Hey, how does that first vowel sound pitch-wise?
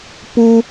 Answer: high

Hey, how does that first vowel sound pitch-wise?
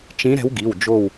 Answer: rising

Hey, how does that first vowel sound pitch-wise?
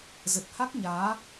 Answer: low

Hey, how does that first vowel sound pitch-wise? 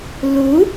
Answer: rising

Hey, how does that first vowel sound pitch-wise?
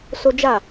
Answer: high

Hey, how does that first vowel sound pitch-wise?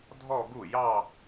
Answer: falling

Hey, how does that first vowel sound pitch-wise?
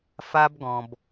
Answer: high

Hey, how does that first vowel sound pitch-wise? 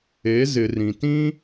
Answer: rising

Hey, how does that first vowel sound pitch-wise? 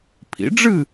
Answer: rising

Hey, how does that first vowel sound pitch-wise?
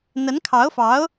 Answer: rising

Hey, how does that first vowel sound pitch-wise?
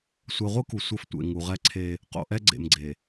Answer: low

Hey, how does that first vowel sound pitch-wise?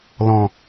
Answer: low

